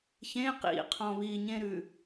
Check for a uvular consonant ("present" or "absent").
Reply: present